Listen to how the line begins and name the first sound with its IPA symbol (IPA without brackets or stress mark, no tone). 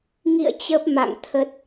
ŋ